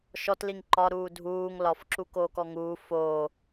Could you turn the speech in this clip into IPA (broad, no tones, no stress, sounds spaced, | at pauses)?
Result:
ʃ ɔ t l i ŋ ǃ ɒ ɾ uː dʱ uː ŋ l ɒ f ǁ u k oː k ɔ ŋ uː f oː